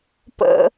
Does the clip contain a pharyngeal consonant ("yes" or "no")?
no